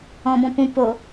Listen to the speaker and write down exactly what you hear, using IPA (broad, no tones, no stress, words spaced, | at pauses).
ɔ̃bɔ̃pũ po